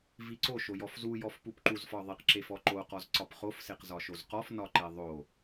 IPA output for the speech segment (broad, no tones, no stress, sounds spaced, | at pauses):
v i ǀ o ʃ o j ɔ f z u j ɔ f p u p ǃ u z f ɒ ðˤ i q ǁ e f ɔ ǃ o q ɔ z ǀ ɒ p χ o f s e q z ɒ ʃ o z q ɔ f n ɒ ǃ e ðˤ o